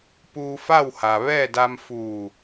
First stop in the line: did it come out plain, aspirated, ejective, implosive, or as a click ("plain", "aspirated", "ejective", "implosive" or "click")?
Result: plain